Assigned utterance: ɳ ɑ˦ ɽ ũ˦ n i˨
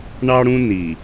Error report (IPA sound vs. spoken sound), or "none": none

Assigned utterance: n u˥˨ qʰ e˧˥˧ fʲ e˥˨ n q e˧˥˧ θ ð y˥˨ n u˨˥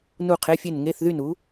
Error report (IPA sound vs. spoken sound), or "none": q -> ŋ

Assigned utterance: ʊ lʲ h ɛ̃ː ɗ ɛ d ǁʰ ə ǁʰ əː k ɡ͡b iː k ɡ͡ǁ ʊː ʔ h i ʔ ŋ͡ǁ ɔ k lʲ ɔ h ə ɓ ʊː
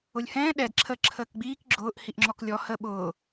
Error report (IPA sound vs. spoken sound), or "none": none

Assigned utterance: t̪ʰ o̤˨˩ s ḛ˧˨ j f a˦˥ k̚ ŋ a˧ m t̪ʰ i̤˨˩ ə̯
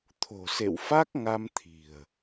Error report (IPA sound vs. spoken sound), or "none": j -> w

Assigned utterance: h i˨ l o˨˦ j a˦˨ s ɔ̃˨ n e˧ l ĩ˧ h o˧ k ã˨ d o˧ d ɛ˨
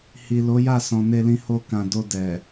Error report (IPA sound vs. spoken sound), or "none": none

